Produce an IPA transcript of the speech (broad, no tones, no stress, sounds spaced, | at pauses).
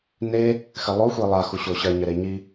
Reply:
n e | x ɘ lˠ o xʷ i lˠ a x u ɕ o ɕ ɐ ɲ ɘ ɾ e ɲ i